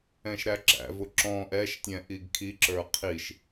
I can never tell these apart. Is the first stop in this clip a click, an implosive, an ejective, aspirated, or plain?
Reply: click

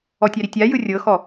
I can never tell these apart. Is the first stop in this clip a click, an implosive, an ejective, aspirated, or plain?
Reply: plain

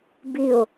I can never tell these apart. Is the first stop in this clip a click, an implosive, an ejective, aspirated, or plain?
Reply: plain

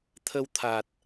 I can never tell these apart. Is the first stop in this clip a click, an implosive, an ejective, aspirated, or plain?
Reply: aspirated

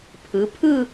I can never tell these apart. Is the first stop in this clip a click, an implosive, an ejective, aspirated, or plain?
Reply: aspirated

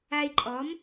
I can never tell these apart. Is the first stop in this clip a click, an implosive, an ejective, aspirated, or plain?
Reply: click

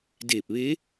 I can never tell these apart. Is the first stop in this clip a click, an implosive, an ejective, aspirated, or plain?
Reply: plain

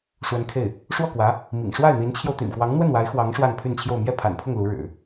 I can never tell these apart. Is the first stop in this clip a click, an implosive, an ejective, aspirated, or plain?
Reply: aspirated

